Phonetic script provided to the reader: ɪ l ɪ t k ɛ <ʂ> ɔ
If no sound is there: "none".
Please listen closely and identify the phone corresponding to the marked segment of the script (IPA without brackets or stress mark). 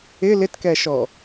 ʃ